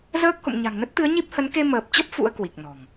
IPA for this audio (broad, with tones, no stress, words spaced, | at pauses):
zəː˦˥k̚ho̰˧˨m ɲa̤˨˩ŋnə˦˥t̚t̪ɨ˨˦ə̯ ɲi˦˥p̚hə˨˦n ke˧məː˨˩p̚t͡ɕə˦˥p̚ fṵ˧˥ə̯ kwi˨˩k̚ nɔ̤˨˩ŋ